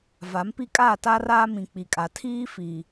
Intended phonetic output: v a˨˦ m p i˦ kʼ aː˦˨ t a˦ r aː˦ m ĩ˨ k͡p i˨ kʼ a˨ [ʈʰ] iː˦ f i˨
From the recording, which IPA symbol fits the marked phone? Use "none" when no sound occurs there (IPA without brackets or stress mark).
tʰ